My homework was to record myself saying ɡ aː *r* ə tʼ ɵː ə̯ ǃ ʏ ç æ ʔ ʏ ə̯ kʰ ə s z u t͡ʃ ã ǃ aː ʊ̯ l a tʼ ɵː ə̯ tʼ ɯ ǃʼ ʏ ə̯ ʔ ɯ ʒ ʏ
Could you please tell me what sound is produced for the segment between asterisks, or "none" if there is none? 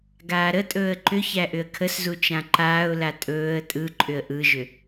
ɾ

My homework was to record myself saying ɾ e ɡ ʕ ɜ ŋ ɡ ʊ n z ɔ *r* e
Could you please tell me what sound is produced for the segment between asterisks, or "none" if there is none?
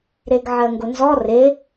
r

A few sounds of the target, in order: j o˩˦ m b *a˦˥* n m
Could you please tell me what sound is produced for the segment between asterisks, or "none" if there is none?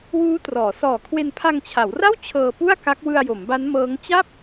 a˦˥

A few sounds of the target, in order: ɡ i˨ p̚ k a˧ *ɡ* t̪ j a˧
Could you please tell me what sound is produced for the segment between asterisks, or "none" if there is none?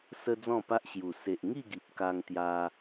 ŋ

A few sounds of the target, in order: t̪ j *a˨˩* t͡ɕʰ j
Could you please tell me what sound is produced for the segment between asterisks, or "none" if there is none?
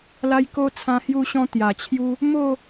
a˨˩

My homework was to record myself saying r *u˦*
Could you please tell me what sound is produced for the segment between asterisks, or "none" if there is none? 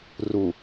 u˨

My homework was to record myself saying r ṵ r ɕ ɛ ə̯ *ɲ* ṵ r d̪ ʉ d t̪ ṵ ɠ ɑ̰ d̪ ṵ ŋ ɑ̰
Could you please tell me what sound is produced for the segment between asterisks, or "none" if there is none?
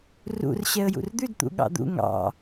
j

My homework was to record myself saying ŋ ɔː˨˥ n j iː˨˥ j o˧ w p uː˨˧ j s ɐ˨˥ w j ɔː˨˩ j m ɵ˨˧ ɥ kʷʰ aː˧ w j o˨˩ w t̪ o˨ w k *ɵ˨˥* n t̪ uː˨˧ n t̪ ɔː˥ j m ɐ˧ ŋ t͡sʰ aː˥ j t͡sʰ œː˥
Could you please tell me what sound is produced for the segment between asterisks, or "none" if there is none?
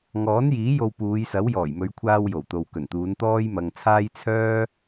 ɵ˨˩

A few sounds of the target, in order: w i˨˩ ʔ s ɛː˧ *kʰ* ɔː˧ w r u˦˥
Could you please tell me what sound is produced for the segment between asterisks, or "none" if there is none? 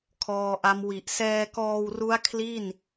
k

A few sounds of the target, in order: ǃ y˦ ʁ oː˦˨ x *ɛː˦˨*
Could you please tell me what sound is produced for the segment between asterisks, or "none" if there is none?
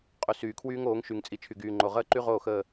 əː˦˨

